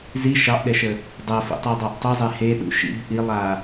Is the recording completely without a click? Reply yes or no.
yes